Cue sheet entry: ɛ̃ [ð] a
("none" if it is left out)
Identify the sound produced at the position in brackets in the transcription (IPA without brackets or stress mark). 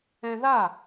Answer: ð